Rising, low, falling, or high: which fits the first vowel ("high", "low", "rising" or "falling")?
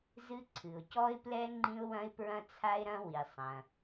high